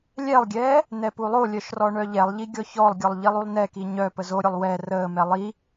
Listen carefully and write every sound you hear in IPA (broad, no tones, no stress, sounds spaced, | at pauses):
lʲ ɛ lˠ ɡʲ ɛː | n ɛ p u lˠ o lʲ œ ʃ r ɔ ɳ œ ʎ ɛ lˠ ʎ i ɡʲ ɔ ç ɔ lˠ ɡʲ ɔ lˠ ʎ i lˠ u lˠ n ɛ k i ɲ œ p ə z o ɾʲ o lˠ w ɛ r əː m ɛ lˠ i